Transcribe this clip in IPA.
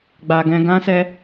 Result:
ɡ͡b a˧ ɡ ɛ̃˧ ɡ ã˦ s ɛ˦

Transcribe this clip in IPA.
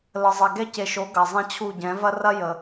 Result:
l ə˨ zˤ ɛ˨ ɡ ɛ˦ c e˨ ʃ o˨˦ ɡ ɐ˨ zˤ ɛ̃˦ t͡ɕʰ u˦˨ ɟ ɛ̃˨˦ v ɐ˦ r ɐ˦ j ə˨

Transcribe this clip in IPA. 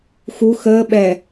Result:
x u x əː ɓ ɛ

